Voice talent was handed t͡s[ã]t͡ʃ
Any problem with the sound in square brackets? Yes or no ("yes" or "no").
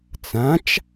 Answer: no